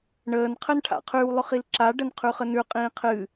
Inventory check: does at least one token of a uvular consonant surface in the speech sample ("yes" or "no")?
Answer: yes